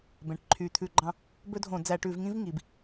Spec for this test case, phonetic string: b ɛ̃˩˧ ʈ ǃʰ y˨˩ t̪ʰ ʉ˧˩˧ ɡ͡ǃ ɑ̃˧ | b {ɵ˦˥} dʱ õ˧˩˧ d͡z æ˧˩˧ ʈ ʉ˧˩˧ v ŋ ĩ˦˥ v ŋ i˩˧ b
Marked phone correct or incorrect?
correct